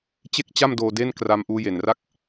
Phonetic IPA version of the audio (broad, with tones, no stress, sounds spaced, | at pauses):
t͡ɕ e˥˩ k̚ t͡ɕ a˥˩ m d oː˧ d e˥˩ n k r a˦˥ m ʔ uː˦˥ j e˨˩ n r a˥˩ k̚